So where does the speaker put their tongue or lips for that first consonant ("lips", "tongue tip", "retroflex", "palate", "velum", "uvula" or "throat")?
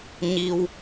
palate